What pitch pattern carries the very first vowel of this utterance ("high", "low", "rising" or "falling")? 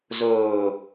low